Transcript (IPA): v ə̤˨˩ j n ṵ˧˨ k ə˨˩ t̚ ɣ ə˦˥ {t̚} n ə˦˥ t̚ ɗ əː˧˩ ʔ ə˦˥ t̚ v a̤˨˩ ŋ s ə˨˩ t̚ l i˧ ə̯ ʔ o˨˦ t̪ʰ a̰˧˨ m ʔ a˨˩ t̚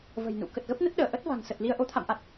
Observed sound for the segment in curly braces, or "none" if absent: p̚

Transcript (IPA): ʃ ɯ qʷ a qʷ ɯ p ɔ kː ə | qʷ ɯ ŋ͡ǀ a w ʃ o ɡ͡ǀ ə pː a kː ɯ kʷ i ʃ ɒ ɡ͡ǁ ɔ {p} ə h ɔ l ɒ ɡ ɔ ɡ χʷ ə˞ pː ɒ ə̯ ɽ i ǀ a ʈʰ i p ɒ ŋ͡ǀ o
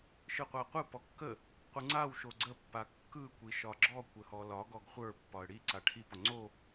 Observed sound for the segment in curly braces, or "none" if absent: kʷ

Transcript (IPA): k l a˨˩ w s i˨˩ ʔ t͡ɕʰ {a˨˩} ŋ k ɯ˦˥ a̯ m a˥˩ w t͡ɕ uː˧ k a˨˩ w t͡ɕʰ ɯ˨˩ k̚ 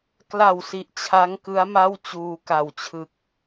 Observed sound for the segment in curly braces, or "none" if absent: a˦˥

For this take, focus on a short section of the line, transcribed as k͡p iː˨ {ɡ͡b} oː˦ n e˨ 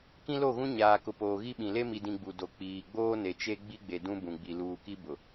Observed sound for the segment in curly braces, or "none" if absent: ɡ͡b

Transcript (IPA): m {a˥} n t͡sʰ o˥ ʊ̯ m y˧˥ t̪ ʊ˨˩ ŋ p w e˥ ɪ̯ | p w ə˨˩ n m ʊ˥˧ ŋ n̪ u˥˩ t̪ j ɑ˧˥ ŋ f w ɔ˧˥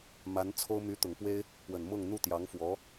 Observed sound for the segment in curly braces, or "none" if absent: a˧˥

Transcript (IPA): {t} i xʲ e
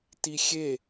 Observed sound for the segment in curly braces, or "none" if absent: t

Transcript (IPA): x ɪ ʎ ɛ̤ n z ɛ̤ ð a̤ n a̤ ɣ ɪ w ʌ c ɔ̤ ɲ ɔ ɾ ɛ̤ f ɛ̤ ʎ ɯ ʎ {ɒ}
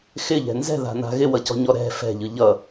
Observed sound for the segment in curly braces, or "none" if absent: ʌ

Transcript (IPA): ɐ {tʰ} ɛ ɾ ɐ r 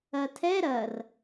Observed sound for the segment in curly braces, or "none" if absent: tʰ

